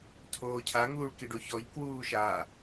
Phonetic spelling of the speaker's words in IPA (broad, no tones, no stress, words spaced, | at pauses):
tʰoːcʰa ŋuːɭkiɖoçɔʎ kwuːʃa